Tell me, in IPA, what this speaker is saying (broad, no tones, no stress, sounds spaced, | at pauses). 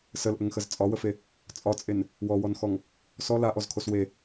s ə l ʔ ə ŋ x ə z t͡sʼ ɒ w ə f e | t͡sʼ ɒ t͡sʼ e n | w ɔ w ɔ n x ɔ ŋ | s ɔ l a ʔ ɔ z kʰ o s w e